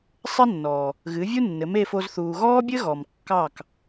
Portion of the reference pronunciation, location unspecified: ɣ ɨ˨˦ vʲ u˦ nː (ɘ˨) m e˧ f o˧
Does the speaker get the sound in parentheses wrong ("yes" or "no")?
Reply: yes